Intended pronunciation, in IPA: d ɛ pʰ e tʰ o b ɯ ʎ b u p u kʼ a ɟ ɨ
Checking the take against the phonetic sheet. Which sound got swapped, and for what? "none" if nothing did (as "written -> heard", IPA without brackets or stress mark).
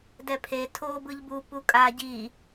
ɨ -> i